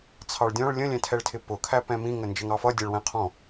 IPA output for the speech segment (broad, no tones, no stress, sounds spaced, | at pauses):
t͡sʰ ɑ ɭ dʲ ɔ̃ ɭ lʲ ə̃ lʲ ɛ̃ tʰ ɛ ɭ tʰ ɪ p ʊ kʰ æ p ɛ̃ m ĩ ŋ ə n d͡ʒ ə ŋ ɑ f ʌ dʲ ɛ ɭ w ɛ̃ qʰ ɔ̃